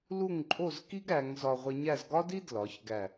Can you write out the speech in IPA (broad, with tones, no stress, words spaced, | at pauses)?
lu˥˧ŋǃʼo˥˧zki˥ɡ ɾæ˩˧ŋ zɒ˧ʁʷe˧ɲæ˥˧z ɡɒ˥di˥ dlɒ˩˧çɡæ˧˩